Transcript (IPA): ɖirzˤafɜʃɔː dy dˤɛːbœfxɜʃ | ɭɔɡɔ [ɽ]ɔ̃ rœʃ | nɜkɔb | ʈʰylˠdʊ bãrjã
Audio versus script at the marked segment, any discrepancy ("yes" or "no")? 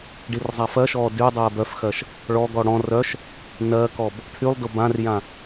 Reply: no